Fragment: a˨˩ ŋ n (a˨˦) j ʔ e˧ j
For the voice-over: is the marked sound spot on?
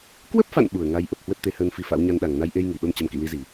no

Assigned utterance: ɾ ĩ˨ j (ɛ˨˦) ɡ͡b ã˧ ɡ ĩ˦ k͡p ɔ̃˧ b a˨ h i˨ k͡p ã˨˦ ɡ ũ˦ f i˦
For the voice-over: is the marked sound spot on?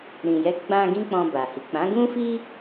yes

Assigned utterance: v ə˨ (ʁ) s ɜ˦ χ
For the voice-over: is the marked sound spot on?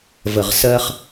yes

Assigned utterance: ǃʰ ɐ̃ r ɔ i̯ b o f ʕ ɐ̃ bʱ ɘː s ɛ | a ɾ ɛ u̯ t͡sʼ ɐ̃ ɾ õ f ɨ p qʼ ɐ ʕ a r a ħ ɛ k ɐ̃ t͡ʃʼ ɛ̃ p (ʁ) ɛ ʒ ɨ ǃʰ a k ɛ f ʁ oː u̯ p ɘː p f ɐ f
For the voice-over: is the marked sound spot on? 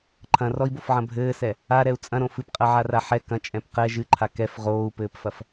no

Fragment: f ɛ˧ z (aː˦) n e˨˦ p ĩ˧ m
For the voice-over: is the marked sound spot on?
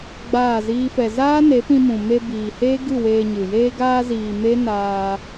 yes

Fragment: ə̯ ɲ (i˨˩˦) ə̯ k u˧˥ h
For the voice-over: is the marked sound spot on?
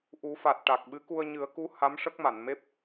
no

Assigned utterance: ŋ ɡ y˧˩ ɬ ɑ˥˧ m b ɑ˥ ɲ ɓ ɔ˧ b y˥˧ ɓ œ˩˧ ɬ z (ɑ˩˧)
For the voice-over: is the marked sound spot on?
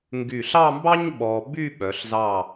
no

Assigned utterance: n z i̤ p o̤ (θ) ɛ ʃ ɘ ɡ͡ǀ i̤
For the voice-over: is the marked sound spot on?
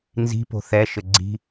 yes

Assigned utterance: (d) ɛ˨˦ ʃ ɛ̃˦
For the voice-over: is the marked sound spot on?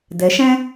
yes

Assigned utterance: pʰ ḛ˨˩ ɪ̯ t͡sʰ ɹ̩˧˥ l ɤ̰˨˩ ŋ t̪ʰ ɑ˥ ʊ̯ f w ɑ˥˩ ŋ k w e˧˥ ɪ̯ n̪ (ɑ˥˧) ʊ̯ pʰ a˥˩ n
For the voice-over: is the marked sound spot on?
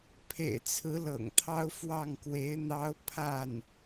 no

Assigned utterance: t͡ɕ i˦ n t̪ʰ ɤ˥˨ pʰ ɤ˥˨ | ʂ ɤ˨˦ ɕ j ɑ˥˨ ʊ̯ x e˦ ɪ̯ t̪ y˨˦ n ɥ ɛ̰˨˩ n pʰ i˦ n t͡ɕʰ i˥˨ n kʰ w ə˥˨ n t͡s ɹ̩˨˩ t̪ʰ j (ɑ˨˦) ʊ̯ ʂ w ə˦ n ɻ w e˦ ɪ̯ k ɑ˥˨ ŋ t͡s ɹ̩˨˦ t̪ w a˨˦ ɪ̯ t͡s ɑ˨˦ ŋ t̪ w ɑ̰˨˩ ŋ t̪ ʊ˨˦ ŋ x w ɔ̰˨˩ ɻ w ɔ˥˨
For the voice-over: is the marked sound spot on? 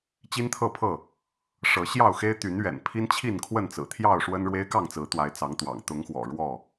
no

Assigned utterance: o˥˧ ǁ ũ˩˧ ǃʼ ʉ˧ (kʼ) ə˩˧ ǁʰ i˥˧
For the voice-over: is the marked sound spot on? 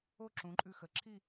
no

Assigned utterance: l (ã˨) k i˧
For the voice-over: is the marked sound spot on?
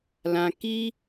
yes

